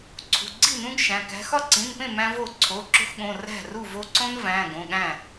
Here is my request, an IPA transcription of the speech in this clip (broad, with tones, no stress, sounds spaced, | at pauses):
ǀʰ ṳ˩˧˩ ɡ͡ǀ i˥˩ n ũ˦ ɡ ʃ æ̃˩˧˩ k æ̤˦ x ɒ˥˩ ǀ ĩ˩˧˩ n p ẽ˥˩ m æ̃˦ v o˥˩ ǀʰ o˩˧˩ ǁ o̤˦ x ɠ õ˩˧˩ r æ̤˥˩ r u˥˩ v o˦ ǀ õ˦ n v æ̃˩˧˩ ɡ õ˩˧˩ ɠ æ̃˥˩